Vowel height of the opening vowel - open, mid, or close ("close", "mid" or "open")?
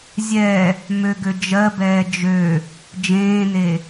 mid